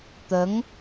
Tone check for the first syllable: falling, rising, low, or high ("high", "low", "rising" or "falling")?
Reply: rising